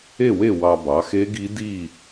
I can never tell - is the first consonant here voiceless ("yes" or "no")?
no